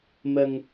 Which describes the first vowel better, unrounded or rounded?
unrounded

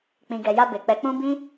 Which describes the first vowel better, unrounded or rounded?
unrounded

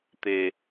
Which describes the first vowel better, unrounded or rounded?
unrounded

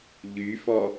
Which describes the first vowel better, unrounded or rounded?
rounded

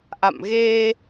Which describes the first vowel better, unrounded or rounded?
unrounded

